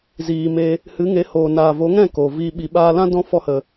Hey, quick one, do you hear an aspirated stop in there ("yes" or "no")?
no